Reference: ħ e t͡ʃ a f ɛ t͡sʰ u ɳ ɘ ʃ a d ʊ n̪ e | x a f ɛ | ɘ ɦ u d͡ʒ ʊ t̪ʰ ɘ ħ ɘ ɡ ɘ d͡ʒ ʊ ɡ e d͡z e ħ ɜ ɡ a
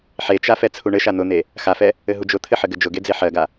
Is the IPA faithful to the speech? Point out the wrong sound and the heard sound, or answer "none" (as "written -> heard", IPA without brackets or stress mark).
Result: d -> n̪